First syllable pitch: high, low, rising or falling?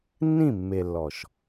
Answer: falling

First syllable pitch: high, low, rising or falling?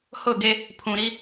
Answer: falling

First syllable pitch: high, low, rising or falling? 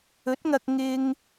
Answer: rising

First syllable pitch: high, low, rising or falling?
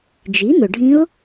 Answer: rising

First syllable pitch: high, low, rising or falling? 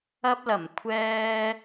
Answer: high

